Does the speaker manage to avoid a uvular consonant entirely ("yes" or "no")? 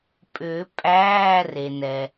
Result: yes